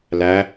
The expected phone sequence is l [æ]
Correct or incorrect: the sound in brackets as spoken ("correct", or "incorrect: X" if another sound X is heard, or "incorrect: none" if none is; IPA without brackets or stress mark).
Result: correct